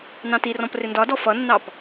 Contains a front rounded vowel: no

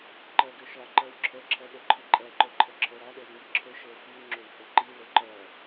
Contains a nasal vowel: no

